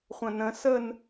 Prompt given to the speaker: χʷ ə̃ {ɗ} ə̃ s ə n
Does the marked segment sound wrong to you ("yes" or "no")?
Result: yes